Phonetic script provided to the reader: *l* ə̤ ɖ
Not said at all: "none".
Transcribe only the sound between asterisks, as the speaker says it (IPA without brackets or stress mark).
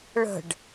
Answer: ɭ